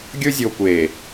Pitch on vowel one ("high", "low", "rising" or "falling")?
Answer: high